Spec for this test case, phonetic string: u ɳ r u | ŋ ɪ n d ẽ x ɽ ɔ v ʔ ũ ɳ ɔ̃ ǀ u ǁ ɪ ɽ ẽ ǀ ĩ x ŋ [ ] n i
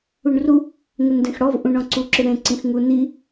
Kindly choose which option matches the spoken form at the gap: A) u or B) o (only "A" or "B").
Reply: A